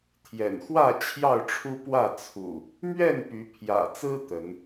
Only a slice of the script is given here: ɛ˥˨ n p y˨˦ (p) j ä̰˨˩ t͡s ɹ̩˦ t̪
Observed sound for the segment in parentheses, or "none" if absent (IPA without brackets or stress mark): pʰ